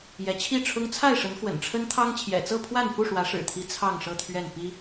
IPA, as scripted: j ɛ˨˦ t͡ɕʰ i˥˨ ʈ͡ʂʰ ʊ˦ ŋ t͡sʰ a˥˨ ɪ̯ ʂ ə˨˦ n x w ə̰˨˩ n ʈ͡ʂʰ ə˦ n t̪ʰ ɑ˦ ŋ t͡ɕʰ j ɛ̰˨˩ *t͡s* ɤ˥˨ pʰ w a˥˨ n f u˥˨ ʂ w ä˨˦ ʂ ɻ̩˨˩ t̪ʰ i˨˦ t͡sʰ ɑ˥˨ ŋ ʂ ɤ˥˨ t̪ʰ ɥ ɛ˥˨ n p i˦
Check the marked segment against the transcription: correct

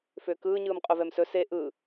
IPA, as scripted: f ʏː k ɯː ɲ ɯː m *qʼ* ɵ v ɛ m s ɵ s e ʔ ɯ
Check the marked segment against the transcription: correct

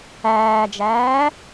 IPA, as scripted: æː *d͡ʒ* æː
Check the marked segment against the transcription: correct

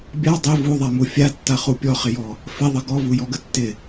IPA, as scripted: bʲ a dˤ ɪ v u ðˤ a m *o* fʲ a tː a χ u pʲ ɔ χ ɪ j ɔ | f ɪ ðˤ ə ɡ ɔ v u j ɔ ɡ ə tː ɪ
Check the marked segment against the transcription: incorrect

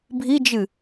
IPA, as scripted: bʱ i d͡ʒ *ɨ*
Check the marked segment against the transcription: correct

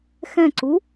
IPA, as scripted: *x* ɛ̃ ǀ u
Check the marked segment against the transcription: correct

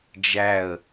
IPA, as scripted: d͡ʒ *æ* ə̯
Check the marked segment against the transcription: correct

